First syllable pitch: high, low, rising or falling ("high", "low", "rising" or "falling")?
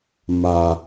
low